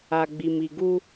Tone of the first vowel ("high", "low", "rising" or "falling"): low